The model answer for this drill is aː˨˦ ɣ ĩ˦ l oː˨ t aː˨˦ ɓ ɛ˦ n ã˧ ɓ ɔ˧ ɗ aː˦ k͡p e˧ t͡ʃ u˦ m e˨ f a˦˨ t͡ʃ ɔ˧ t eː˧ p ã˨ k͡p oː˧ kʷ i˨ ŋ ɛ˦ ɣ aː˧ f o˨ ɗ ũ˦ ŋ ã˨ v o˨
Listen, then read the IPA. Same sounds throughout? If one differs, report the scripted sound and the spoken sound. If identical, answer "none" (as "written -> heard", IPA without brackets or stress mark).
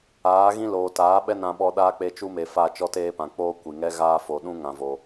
none